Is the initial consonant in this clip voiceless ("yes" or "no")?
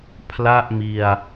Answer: yes